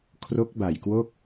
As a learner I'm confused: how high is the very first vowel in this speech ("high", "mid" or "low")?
mid